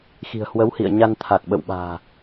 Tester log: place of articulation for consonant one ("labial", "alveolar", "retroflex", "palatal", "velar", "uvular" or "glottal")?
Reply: velar